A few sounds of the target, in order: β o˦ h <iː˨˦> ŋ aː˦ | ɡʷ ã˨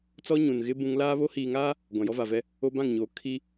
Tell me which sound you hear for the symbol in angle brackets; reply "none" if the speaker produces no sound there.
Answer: iː˨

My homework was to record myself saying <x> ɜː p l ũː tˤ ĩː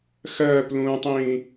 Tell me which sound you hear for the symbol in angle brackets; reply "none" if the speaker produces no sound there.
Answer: x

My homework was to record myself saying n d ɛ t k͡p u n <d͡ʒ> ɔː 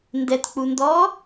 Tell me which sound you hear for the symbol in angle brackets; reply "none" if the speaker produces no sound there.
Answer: d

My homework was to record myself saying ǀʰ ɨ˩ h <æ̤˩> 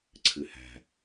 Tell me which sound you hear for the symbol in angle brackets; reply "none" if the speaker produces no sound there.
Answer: æ̤˩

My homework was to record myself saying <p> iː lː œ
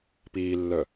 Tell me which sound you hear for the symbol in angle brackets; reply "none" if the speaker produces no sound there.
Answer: p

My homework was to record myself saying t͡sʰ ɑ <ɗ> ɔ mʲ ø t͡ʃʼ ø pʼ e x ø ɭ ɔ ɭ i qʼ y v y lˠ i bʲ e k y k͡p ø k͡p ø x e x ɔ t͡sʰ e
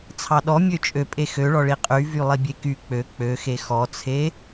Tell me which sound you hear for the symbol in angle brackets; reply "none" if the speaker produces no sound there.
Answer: ɗ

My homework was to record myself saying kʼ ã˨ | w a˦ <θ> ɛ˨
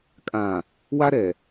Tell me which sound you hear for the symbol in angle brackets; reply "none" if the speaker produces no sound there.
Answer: ɾ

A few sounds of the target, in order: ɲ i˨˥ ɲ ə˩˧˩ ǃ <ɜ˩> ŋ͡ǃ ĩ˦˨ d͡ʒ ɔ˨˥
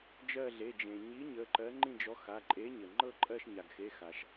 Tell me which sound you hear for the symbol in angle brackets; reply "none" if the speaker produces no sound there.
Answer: ɜ˨˥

